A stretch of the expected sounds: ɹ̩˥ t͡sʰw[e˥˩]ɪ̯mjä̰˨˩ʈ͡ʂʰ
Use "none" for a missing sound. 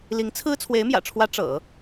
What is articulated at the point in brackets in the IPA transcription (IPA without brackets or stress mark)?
e˧˥